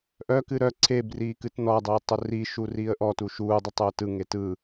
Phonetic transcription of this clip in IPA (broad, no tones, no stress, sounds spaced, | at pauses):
ʔ œ k ɨ ɾ œ ǀʰ e b r iː k ɨ t n ɔ dˤ iː tˤ ʊ r i ʃ u r iː ə̯ ʔ ɔ t u ʃ uː dˤ ʊ tˤ ʊː t ɯ ŋ e t ɯ